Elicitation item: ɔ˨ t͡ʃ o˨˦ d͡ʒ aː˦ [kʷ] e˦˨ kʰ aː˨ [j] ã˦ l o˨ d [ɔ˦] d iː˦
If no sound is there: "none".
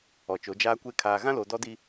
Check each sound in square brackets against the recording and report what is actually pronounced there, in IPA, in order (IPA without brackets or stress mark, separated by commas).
kʷ, ɣ, ɔ˦